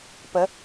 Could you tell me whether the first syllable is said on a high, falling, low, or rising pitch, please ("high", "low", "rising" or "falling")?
rising